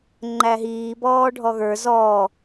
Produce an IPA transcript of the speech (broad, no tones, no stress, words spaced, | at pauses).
ŋ͡ǃæɦiːbɔːɖʱɔ ɣə˞ zɔ